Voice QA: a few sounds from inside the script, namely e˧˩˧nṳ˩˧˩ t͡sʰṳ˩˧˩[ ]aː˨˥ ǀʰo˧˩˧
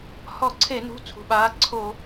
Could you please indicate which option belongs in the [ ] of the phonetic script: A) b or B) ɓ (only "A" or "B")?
B